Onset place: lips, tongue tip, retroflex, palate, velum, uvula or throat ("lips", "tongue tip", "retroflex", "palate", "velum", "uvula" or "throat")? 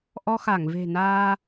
throat